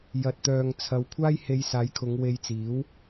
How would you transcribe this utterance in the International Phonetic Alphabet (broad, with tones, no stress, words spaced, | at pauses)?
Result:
jɐ˨t̚t̪œː˨ŋt͡sʰɐ˨˧wkʷʰaː˥j he˧jsaː˨˧jkʰʊ˨˧ŋ we˧jt͡siː˨˥w